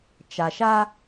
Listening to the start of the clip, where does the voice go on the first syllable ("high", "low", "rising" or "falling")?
low